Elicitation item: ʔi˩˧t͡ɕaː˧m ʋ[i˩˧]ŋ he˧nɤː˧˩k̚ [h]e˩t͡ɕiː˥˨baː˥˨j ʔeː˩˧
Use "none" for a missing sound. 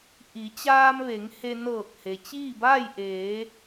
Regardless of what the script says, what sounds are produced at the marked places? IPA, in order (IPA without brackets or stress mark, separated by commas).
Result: e˩˧, h